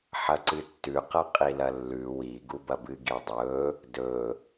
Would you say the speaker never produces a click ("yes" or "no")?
no